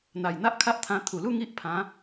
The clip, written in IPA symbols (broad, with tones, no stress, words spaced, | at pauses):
n̪a˨˩jn̪a˦ʔkʰa˦ʔt̪ʰã˧ t̪ʰu˨˩lu˥˧ ŋi˦ʔ pʰã˨˦